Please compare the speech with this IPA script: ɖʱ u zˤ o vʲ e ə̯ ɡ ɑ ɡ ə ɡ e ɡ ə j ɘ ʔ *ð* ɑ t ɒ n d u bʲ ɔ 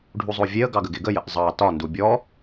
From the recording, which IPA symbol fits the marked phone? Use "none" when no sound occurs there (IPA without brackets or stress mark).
zˤ